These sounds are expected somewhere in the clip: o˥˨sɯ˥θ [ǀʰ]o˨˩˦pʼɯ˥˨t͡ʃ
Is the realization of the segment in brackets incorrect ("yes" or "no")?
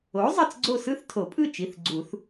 yes